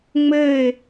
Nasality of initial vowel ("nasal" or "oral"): oral